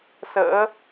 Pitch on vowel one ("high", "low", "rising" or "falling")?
rising